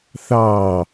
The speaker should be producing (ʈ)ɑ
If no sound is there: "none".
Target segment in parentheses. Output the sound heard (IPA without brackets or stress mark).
θ